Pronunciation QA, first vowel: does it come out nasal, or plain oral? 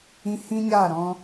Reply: nasal